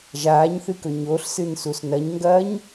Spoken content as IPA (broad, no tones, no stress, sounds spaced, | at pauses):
ʒ aː ɲ θ ɨ k ɵ ɲ o ɬ s ɨ n s u s n ɐ ɲ ŋ ɡ ɐː ɲ